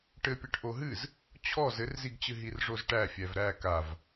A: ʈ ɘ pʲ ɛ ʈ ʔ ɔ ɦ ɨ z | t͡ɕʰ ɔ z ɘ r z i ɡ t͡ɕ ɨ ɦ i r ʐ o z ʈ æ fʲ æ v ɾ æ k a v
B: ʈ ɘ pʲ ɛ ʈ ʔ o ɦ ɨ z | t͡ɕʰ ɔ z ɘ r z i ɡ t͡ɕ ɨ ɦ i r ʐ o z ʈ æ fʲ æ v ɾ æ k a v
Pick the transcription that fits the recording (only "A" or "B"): B